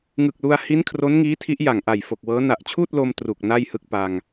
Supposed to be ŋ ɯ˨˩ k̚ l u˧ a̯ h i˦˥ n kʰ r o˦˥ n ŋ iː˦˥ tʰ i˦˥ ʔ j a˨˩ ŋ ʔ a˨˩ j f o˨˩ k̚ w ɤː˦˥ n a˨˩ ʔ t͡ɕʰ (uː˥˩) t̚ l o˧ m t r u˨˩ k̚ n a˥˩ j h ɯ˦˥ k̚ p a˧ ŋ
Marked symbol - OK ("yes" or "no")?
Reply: yes